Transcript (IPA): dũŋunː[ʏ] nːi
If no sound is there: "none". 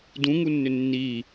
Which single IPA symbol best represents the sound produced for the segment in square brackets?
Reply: ʏ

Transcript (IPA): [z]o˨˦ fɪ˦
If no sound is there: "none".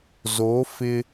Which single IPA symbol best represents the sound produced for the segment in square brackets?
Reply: z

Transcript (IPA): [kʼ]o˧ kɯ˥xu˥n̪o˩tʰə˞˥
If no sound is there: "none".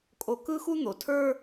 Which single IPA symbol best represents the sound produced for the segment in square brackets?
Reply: kʼ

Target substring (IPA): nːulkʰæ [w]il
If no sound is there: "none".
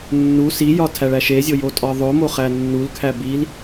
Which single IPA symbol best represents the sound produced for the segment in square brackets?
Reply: b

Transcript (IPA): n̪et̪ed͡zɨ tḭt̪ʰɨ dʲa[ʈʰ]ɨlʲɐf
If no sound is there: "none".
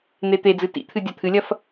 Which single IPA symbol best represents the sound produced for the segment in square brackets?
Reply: t̪ʰ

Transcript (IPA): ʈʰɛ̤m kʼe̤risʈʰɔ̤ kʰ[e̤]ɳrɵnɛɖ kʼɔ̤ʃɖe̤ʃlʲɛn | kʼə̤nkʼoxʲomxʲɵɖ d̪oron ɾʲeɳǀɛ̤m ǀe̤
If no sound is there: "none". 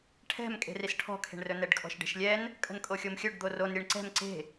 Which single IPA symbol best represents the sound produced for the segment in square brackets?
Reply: e̤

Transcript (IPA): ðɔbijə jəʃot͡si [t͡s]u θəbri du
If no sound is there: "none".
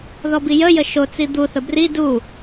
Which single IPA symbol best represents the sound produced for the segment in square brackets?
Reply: d̪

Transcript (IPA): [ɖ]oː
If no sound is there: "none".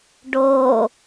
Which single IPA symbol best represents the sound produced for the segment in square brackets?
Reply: ɖ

